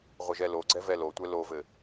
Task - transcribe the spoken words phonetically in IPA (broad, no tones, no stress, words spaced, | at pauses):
ʁʷɘʒɛloɡ͡ǀɛ vɛlotʷɛ lovɘ